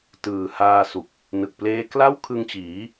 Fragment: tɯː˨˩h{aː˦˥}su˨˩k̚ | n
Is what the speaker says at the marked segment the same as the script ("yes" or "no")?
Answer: no